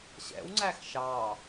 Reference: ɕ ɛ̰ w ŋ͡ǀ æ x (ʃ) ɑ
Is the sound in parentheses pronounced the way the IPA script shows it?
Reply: yes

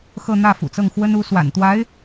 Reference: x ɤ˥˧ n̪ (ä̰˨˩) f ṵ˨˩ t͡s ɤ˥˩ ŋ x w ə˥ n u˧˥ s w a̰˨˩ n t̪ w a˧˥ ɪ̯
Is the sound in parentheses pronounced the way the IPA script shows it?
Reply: no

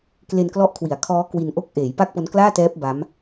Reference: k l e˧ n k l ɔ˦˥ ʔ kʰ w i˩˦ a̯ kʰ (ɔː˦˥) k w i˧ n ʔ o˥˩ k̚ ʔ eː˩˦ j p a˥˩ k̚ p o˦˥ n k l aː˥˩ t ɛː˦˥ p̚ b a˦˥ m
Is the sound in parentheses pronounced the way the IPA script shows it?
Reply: yes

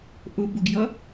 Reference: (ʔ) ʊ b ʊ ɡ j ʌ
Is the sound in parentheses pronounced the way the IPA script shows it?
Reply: yes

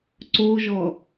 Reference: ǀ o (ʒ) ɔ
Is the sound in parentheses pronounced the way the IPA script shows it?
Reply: yes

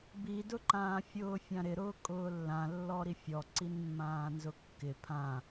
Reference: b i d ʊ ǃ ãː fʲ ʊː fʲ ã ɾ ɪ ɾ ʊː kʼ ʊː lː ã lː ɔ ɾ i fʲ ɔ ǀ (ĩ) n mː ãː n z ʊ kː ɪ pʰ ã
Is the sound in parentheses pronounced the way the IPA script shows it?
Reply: no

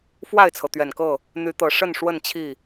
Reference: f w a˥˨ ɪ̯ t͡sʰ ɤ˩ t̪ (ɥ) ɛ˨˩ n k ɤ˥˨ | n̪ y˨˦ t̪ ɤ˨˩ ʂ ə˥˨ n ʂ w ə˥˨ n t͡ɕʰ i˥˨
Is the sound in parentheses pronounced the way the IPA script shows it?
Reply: yes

